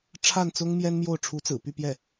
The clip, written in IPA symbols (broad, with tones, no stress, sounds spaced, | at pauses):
ʈ͡ʂʰ a˥˩ n t͡s ʊ˥ ŋ m j ɛ˥ n m j o˥˩ ʊ̯ ʈ͡ʂʰ u˧˥ t͡s ɹ̩˨˩ p y˥˧ p j ɛ˥˩